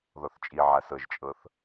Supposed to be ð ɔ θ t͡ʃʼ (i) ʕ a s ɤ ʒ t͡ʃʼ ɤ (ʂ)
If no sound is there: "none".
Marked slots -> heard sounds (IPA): i, θ

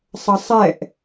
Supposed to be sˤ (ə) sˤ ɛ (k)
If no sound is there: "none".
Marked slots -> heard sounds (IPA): ə, ʔ

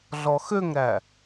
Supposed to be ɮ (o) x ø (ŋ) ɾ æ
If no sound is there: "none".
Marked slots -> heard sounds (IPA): ɔ, ŋ

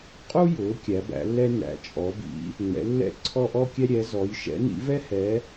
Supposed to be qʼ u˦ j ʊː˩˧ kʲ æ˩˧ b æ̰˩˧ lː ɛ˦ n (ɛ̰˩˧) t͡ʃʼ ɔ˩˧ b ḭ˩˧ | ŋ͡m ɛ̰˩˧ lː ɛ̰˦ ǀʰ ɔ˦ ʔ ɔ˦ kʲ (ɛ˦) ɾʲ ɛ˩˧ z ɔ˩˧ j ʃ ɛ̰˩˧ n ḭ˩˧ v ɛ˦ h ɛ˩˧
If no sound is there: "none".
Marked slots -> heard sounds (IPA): æ̰˩˧, ɛ˦

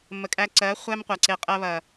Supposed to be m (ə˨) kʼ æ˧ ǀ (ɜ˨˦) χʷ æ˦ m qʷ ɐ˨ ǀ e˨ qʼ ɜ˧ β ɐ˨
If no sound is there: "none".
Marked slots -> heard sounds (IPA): ə˨, ɜ˨˦

